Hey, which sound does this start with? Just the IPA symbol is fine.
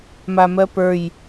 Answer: m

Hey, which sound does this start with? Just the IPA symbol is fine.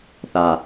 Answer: θ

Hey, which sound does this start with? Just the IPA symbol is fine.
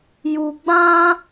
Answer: j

